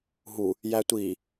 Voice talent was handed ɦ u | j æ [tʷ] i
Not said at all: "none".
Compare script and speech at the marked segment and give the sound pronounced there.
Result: tʷ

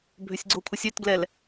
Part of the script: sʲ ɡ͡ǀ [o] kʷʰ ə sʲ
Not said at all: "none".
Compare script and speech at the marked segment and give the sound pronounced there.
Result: o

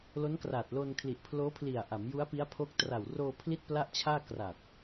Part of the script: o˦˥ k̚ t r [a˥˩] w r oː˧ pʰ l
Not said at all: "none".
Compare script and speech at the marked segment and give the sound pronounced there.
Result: a˨˩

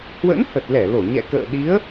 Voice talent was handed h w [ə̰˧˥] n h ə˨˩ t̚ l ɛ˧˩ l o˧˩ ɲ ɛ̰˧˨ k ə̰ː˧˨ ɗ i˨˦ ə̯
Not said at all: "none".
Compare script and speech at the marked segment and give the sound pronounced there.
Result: ə̰˧˥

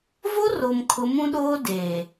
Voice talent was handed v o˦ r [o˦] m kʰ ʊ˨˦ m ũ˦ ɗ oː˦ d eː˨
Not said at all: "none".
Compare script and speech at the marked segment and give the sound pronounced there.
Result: o˨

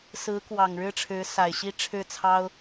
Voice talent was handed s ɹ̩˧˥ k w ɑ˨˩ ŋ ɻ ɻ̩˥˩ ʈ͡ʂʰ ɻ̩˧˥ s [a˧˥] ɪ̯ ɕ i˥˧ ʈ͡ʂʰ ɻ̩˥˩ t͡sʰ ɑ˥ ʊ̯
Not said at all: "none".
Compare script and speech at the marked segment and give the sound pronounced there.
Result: a˨˩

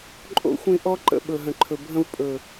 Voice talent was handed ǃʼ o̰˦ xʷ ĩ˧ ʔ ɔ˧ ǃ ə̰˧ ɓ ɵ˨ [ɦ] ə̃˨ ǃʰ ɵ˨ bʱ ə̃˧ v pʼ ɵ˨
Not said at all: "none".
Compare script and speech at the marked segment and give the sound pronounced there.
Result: ɦ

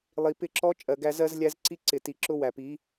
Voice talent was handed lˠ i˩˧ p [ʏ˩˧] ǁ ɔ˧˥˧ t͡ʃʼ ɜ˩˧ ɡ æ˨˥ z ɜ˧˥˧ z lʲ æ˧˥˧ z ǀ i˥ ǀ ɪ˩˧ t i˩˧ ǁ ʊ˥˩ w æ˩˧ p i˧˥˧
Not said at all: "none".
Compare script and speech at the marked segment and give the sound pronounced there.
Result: ɪ˩˧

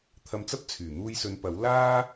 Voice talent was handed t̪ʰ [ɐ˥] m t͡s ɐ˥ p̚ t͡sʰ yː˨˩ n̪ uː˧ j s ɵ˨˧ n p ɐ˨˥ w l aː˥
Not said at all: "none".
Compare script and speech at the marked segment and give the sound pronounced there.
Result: ɐ˧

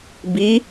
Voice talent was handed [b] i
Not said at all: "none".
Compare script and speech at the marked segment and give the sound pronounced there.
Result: b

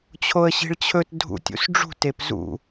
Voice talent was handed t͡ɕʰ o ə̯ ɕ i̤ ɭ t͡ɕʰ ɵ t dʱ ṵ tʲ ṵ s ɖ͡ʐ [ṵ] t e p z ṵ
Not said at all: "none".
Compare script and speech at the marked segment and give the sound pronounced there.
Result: ṳ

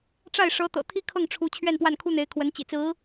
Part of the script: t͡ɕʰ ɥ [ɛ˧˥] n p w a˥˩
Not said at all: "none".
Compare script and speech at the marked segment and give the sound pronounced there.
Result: ɛ˥˧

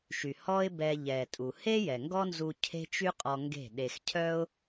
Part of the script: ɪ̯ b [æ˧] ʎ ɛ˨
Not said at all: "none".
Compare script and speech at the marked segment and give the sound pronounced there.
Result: ɛ˧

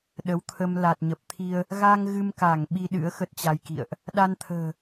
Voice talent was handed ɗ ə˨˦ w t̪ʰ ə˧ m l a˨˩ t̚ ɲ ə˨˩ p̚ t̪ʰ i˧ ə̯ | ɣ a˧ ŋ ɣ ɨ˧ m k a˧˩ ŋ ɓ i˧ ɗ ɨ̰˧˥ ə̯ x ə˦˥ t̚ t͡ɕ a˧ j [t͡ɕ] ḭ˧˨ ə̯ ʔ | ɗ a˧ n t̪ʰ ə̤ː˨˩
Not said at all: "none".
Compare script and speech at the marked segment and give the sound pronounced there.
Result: k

